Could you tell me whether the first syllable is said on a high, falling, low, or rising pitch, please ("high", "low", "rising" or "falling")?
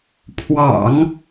low